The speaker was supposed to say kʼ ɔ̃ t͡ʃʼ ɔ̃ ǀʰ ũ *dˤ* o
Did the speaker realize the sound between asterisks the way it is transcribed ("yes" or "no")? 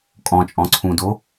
no